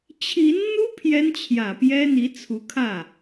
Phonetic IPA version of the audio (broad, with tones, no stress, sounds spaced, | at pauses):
t͡ɕʰ i˧˥ n n̪ u˥ pʰ j ɛ˥ n t͡ɕʰ j ä˨˩ p j ɛ˥ n̪ i˧˥ t͡sʰ u˧˥ kʰ ä˥˩